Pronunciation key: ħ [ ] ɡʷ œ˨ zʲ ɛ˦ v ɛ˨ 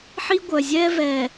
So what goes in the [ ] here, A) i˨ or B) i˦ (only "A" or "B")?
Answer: B